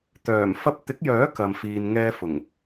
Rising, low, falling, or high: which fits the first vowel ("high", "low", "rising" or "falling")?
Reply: low